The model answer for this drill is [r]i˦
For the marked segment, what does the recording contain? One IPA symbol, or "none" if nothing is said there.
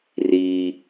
r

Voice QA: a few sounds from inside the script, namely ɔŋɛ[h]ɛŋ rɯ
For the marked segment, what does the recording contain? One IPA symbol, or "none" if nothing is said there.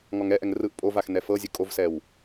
ʔ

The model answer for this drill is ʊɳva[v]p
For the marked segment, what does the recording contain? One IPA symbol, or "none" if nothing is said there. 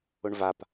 none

